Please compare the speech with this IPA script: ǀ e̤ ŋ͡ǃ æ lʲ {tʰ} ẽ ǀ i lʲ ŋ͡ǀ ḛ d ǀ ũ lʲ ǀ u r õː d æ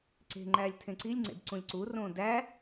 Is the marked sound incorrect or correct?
correct